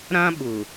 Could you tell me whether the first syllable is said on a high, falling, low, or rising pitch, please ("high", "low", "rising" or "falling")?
high